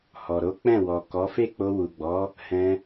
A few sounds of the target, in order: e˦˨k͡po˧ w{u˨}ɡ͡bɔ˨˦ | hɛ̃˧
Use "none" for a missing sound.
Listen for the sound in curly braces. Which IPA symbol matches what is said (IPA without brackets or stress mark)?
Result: u˨